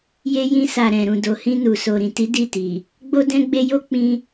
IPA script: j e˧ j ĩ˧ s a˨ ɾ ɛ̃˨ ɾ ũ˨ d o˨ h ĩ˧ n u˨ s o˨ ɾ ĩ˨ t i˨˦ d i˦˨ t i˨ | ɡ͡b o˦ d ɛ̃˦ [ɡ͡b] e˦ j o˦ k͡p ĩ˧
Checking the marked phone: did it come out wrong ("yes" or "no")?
no